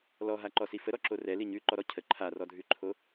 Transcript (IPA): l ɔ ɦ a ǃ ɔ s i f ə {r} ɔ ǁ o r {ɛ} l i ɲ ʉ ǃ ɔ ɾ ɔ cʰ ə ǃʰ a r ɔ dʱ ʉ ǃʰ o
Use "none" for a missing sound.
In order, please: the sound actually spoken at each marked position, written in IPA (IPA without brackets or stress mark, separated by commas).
ɾ, ɛ